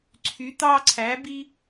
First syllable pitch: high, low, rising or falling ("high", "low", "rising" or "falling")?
rising